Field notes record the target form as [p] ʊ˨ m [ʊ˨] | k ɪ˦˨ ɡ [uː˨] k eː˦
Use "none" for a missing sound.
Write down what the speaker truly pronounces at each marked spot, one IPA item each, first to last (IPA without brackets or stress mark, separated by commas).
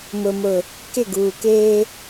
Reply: m, ʊ˨, uː˨